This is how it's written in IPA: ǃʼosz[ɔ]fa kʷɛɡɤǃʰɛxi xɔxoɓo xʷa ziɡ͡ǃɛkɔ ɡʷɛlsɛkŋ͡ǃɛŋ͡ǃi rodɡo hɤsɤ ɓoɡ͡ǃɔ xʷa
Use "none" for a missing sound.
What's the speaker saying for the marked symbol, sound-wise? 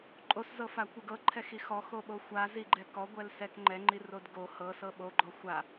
ɤ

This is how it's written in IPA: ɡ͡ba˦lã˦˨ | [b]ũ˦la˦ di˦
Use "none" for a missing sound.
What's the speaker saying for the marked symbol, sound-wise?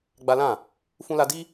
f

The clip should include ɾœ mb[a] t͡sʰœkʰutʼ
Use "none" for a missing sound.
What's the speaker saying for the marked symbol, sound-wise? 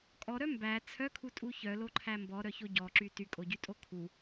æ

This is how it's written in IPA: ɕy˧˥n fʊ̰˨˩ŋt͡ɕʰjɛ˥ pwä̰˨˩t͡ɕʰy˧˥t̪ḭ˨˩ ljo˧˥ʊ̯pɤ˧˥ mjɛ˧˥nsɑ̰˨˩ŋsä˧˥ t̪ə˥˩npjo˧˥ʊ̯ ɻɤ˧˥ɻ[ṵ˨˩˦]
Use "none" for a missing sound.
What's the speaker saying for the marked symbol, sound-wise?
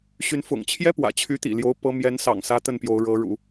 ṵ˨˩˦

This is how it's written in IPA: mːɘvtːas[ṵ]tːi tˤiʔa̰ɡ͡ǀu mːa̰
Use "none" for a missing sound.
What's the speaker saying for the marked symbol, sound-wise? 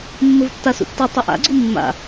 ṵ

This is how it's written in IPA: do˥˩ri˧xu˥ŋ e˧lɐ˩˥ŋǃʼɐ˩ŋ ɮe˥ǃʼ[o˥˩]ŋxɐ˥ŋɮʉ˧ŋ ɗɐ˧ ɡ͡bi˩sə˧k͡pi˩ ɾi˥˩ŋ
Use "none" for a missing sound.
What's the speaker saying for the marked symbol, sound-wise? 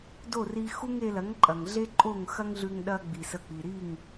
o˥˩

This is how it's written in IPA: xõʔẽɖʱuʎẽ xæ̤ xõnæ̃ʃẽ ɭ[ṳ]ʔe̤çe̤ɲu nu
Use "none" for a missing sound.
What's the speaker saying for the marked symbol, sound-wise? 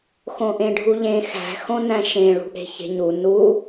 ṳ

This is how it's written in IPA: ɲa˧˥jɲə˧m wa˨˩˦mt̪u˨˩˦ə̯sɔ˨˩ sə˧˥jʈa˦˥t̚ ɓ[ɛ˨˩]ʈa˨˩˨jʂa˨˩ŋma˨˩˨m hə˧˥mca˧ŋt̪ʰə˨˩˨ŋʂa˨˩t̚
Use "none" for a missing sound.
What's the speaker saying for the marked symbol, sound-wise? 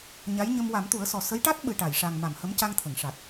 ɨ˨˩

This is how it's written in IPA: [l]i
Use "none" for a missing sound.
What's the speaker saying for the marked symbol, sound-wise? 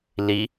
l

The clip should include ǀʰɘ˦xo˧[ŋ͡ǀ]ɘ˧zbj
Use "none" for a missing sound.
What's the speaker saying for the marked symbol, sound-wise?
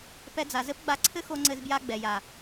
ŋ͡ǀ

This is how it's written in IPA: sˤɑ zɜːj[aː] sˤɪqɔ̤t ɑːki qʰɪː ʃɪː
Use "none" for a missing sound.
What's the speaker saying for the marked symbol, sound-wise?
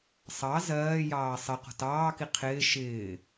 ɑː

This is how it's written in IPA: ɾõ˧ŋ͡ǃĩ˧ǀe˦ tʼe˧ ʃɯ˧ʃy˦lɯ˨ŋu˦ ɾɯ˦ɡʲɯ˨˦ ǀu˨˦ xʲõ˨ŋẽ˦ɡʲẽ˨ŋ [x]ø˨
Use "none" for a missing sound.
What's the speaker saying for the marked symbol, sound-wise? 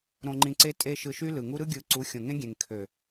kʰ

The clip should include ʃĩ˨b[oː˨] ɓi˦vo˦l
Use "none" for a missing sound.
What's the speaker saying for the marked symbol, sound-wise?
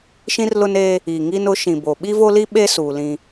o˨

